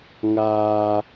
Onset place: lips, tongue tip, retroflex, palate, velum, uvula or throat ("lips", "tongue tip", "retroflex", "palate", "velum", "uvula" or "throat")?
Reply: velum